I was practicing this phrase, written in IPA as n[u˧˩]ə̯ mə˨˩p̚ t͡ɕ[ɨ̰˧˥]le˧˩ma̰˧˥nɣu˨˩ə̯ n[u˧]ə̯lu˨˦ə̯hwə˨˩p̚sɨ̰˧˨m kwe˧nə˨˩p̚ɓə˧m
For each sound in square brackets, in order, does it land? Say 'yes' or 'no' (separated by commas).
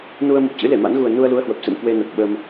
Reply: no, yes, yes